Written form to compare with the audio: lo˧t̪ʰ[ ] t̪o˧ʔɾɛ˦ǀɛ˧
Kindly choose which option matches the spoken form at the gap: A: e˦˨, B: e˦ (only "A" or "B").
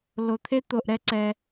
B